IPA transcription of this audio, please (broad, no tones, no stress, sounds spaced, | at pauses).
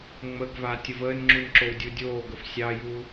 ŋ͡m ə ɡ v a tʲ ə v əː n ŋ͡ǁ u n ǁ o w dʲ u dʲ oː ɡ ə f sʲ ɑ j u